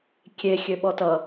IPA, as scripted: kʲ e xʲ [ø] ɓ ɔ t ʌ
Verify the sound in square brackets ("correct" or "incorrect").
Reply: correct